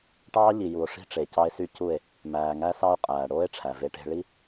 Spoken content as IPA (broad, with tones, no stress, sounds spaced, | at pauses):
ʈ ɑː˦ ʎ i˨ j u˨ o̯ ʂ i̤˦ ʈ͡ʂ e˨ c ɑ˦ e̯ s y˦ c u˦˨ e̯ | m æː˨ ŋ æ˦ s ɑ˦ o̯ qʼ æː˨ ɽ oː˦ e̯ ʈ͡ʂʰ æ˨ v e˦ ʈ e̤˦ ɭ i˦